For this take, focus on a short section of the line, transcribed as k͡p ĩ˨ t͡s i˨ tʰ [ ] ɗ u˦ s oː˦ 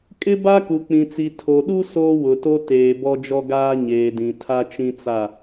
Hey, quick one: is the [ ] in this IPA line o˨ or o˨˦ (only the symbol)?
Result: o˨